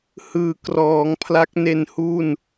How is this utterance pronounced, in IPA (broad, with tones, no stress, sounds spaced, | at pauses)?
h ɯː˩˦ k r ɔː˩˦ ŋ pʰ l a˦˥ k̚ n e˧ n h u˥˩ n